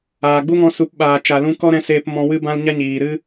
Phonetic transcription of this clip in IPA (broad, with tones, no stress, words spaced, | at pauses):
aː˨ ɡ͡bu˦ŋɔ̃˧su˨˦p ɓaː˨t͡ʃa˨lũ˧kɔ˦ ɾɛ̃˦seː˦p mɔ̃˧wɨ˦bã˦l ɲa˦ɲiː˨ɾɨ˦